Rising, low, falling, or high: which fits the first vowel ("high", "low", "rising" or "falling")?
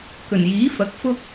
low